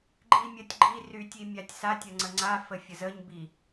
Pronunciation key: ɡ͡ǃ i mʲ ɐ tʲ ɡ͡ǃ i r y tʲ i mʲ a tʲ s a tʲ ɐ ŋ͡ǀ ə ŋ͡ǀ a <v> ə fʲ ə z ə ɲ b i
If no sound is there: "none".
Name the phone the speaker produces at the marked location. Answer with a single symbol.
f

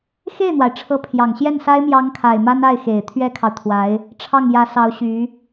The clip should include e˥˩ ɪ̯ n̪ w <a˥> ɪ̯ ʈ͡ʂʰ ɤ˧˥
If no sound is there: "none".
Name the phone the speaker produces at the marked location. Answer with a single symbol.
a˩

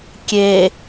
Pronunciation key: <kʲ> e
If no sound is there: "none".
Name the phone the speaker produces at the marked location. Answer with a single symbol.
kʲ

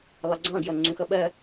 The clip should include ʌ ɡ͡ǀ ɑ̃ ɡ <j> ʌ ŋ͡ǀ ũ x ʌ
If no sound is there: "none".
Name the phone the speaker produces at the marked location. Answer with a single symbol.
j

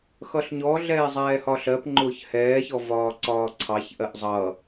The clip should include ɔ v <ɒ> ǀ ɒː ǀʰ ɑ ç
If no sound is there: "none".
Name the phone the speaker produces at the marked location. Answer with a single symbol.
ɒː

